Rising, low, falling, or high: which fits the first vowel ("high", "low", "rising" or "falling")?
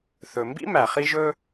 low